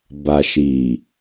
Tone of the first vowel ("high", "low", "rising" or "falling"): low